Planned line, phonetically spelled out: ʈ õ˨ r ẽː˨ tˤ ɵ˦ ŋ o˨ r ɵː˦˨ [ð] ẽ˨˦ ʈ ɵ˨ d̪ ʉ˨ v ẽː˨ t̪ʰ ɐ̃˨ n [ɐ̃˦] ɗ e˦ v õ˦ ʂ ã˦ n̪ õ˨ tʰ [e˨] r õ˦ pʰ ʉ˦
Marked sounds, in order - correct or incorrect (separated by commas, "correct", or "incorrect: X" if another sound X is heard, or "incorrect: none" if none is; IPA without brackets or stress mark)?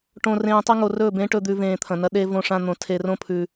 incorrect: b, incorrect: ɐ˦, correct